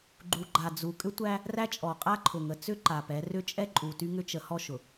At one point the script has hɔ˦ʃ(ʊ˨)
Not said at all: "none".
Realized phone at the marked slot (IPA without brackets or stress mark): ʊ˨